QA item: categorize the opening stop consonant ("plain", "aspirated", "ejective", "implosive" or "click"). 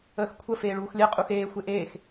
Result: aspirated